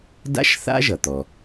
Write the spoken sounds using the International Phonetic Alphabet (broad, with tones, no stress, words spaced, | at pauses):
da̰˥ʃθa̰˥ʒʌ˩t̪ɔ˩